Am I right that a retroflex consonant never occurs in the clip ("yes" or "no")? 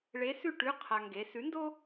no